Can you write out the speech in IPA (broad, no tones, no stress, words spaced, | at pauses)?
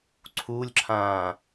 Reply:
ǀʰulʲǁʰãː